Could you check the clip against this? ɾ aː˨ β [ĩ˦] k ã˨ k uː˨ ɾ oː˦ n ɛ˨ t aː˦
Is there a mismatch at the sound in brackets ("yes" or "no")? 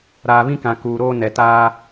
no